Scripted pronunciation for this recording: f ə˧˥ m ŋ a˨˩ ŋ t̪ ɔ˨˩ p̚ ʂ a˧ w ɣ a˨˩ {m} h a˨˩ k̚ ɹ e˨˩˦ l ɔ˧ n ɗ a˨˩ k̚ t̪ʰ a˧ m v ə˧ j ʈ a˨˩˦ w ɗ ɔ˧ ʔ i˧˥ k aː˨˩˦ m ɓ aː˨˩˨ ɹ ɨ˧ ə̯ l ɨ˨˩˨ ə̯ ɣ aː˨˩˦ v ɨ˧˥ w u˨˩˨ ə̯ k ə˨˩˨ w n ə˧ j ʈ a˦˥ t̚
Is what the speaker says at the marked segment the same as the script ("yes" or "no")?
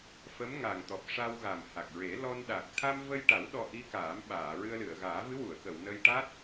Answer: yes